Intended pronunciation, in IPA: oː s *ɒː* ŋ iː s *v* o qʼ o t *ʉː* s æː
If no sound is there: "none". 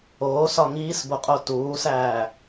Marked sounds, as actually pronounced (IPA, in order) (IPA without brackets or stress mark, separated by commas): ɒ, b, uː